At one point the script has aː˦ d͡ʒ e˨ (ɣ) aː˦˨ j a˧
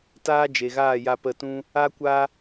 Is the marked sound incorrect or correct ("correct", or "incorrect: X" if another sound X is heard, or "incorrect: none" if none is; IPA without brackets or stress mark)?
correct